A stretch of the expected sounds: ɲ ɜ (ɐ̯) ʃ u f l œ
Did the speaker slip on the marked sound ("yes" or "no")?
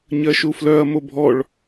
yes